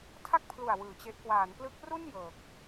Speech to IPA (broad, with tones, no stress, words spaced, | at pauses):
tʰa˥˩k̚pʰlu˨˩a̯ wɯː˨˩t͡ɕe˦˥ʔ kwaː˩˦nplɯ˦˥k̚ru˥˩n jɤː˨˩k̚